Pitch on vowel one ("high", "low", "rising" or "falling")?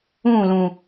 falling